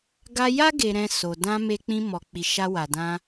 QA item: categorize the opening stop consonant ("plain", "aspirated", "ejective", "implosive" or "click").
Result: plain